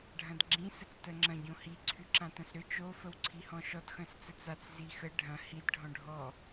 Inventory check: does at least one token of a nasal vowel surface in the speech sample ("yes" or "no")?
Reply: yes